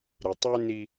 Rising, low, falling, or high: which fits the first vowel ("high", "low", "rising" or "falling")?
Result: low